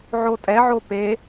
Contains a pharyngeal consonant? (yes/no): yes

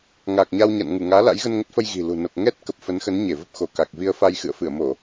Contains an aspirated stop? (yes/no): no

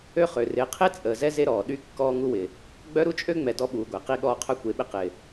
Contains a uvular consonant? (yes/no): yes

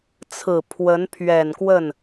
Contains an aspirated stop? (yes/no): yes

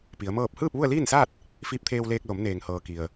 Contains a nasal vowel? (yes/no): no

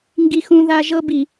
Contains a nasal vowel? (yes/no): yes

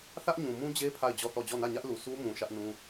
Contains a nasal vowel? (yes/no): yes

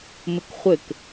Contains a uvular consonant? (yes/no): yes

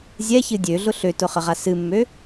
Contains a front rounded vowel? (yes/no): yes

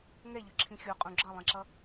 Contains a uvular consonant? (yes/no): yes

